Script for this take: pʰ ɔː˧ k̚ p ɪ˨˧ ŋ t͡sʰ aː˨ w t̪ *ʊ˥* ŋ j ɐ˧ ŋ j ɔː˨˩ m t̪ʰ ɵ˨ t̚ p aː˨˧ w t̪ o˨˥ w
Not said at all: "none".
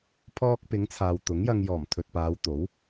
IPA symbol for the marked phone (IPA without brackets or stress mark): ʊ˨˥